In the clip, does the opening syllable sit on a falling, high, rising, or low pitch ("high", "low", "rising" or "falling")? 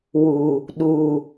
low